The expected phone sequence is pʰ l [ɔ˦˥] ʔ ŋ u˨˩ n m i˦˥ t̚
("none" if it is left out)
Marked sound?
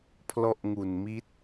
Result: ɔ˦˥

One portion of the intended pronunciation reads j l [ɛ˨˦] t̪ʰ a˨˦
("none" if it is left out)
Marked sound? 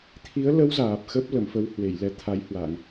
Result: ɛ˨˦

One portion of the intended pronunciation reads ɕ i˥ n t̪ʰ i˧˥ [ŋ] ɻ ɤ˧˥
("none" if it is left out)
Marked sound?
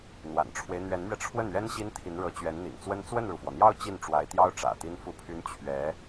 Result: n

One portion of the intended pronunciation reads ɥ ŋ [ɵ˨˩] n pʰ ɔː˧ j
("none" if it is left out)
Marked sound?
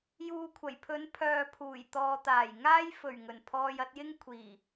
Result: ɵ˨˩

